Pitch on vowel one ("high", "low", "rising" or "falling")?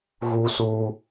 high